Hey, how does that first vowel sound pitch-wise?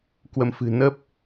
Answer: rising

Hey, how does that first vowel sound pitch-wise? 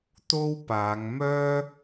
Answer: high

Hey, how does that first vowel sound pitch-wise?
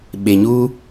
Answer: low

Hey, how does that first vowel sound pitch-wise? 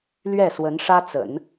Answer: falling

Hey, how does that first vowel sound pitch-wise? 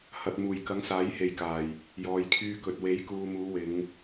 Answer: low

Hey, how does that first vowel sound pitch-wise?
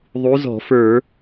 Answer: rising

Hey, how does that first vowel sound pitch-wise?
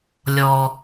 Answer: low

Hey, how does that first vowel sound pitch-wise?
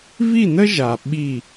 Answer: falling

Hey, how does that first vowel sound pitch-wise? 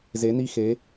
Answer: rising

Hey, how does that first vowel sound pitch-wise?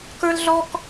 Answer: high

